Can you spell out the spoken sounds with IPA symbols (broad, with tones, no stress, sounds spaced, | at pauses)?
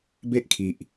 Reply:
b e˦ ʔ kʰ i˨ ʔ